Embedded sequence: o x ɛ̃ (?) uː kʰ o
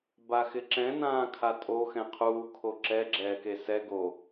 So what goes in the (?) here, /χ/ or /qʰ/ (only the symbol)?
qʰ